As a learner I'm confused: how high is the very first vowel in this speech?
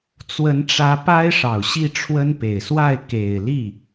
mid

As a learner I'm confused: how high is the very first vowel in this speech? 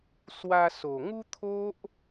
low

